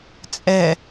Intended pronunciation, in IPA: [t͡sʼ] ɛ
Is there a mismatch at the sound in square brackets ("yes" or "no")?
no